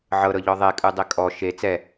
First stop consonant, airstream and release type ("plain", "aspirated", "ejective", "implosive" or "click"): ejective